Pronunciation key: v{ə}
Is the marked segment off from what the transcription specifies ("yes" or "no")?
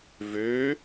yes